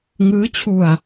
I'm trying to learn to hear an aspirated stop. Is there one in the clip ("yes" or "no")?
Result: yes